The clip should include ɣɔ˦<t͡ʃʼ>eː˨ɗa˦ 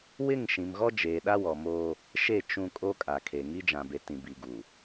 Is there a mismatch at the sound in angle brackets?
yes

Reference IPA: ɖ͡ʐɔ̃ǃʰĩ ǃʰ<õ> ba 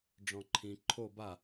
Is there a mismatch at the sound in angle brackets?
yes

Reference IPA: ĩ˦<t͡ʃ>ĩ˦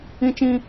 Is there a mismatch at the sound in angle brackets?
no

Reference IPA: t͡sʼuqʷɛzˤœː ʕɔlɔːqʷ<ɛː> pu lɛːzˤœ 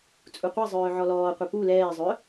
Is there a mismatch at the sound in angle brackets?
yes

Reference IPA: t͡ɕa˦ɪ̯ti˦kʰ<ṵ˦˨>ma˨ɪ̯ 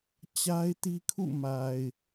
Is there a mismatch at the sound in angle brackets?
no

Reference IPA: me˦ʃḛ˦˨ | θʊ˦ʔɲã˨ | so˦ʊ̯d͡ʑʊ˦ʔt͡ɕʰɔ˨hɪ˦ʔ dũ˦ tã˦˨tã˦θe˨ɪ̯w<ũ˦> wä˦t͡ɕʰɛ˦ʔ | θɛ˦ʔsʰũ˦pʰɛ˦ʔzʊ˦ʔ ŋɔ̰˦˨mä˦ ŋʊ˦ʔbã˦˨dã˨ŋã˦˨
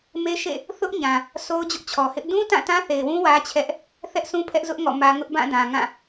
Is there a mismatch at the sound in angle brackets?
no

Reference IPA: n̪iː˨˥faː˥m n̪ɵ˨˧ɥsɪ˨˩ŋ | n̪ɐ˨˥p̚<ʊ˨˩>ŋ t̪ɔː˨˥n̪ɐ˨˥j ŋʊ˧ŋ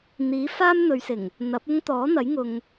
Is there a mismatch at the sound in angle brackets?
yes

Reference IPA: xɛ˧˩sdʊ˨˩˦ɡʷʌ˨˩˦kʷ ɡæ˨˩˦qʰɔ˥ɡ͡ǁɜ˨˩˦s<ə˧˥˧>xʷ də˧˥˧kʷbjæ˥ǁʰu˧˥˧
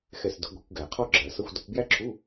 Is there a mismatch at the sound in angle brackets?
yes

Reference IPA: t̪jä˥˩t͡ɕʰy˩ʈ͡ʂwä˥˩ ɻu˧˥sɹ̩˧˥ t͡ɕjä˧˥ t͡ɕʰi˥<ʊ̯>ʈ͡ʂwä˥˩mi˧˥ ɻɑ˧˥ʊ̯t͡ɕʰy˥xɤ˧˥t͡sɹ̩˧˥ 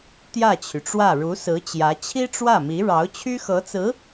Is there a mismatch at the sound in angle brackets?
yes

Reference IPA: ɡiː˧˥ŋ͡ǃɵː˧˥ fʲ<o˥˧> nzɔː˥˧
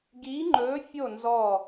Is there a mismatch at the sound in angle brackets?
no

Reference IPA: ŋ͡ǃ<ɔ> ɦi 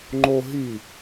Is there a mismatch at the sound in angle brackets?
yes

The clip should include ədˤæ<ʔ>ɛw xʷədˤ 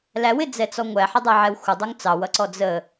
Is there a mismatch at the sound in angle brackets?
yes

